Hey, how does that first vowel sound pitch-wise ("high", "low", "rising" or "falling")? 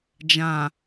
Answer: low